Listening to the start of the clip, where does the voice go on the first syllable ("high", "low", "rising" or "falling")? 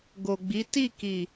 low